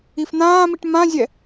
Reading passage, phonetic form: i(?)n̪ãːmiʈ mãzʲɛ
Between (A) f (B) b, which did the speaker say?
A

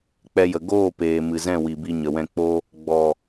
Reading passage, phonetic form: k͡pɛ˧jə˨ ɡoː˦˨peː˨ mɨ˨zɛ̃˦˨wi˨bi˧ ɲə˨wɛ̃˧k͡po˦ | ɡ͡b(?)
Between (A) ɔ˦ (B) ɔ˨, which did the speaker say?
B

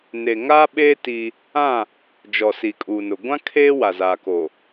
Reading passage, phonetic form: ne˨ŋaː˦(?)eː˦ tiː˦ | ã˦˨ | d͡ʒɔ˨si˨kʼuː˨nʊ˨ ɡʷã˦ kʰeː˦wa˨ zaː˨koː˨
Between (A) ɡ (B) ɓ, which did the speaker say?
B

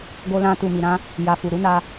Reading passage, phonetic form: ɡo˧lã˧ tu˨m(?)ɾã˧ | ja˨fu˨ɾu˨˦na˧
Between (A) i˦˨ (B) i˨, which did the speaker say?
B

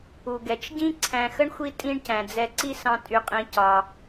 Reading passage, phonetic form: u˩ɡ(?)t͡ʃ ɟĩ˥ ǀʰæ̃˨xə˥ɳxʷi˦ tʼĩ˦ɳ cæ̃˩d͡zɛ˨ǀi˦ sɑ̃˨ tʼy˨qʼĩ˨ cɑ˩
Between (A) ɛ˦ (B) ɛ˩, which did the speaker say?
B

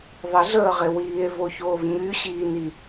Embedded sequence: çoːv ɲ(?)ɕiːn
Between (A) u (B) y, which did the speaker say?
B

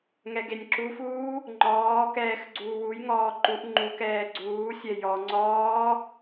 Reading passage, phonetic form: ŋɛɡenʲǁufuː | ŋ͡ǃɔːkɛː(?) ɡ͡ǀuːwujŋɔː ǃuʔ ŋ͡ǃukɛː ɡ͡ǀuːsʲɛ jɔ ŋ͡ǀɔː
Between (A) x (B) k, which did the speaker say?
A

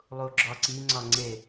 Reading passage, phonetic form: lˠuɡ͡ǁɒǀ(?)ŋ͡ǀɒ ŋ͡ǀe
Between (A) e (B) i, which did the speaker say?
B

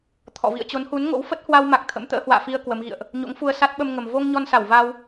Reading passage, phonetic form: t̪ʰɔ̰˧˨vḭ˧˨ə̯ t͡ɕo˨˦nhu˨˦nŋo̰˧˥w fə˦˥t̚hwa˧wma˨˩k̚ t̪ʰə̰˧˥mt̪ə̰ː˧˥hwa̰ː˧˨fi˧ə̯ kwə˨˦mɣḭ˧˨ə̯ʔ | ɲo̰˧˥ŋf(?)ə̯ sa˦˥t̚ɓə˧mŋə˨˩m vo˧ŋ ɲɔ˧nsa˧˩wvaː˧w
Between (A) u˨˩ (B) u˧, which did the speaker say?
B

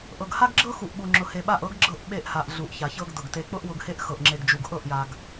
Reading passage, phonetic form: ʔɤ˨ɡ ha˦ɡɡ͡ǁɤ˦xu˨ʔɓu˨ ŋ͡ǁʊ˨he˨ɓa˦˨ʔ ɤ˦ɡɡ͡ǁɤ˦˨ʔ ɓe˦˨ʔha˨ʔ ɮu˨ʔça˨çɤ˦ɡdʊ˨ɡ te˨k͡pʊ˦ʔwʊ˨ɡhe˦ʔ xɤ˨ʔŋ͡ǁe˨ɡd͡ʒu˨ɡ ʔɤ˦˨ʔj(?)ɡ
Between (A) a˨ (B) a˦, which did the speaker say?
A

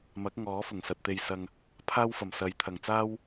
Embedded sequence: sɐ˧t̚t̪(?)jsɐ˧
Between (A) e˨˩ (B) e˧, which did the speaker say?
B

